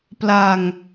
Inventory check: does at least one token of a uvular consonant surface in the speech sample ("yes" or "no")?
no